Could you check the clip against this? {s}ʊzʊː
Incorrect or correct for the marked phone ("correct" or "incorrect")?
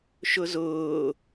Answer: incorrect